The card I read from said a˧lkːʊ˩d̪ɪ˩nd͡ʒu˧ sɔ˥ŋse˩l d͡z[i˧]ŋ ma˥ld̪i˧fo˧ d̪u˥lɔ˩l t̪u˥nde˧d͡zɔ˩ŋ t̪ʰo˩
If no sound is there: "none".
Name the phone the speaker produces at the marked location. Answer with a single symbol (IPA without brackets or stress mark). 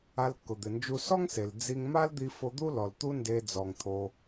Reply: i˧